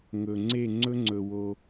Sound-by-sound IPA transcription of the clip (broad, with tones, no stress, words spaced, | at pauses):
ŋɵ˨ ŋ͡ǀe˦˨ŋ͡ǀɵ˦ŋ͡ǀɵ˨ wo˧